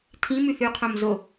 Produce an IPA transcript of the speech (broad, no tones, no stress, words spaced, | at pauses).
tʰĩmʉθ ʉqʰõm zo